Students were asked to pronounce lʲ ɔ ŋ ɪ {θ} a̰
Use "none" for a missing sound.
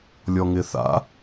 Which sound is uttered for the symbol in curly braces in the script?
θ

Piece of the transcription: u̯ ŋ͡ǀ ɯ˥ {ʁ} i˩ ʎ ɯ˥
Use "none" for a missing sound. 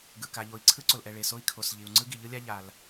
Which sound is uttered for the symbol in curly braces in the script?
ɡ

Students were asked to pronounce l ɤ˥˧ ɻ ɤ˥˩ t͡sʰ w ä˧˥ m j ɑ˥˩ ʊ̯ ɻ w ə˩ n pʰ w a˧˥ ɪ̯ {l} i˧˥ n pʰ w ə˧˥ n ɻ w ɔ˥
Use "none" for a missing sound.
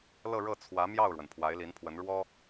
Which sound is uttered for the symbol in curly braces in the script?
l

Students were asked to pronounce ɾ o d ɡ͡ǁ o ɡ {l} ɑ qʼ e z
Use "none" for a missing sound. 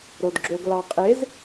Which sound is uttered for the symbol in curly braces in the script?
l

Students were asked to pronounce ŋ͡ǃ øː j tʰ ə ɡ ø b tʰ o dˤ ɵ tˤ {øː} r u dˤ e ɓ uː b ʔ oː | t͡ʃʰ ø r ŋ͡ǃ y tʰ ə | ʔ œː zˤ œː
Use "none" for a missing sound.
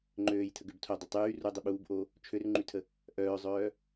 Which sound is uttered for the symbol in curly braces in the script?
yː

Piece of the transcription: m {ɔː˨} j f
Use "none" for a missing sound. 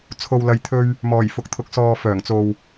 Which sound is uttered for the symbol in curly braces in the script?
ɔː˨˩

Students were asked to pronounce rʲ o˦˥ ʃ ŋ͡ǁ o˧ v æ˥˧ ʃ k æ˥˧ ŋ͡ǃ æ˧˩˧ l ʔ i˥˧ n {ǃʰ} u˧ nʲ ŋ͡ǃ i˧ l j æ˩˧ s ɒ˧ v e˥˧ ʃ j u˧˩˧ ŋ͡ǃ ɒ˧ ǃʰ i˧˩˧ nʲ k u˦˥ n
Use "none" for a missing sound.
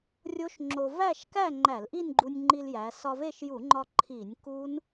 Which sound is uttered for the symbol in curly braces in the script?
ɡ͡ǃ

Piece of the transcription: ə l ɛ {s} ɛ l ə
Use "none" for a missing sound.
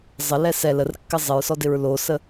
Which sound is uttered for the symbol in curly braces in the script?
s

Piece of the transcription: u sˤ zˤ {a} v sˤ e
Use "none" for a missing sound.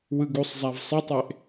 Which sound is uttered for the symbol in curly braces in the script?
a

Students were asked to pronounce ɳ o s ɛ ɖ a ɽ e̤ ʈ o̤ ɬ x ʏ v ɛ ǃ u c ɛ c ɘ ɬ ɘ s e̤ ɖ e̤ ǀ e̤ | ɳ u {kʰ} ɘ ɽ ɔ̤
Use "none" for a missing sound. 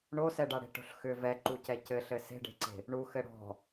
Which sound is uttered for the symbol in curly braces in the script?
x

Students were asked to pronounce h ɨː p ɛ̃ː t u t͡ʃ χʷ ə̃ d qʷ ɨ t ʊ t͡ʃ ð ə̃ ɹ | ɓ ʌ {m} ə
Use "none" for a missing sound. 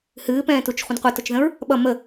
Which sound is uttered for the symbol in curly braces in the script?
m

